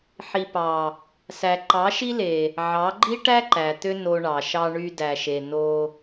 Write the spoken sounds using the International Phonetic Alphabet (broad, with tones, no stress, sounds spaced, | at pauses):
ħ i˨ p ɑ˨ | s æ˨ ǃ ɑ˨˦ ʃ i˦ l e˨ | ʕ ɑ˨˦ ɡ͡ǃ i˦ ʈ æ˦ ǃ æ˨ t̪ ø˦ n o˧ ɳ ɑ˨ ʃ ɑ˧ ɳ y˧ d æ˨ ʃ e˨ n o˧